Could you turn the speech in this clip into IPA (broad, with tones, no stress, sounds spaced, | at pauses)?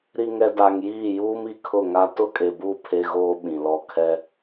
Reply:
ɾ i˨ ŋ ɛ˨ d a˨ ŋ j iː˦˨ j uː˦ m i˨ kʰ ʊ˦˨ ŋ a˦ t ʊ˦ kʼ e˨ b u˦˨ pʰ e˦ ɣ oː˦ ɓ ĩ˨ l ɔ˦˨ kʰ ɛ˦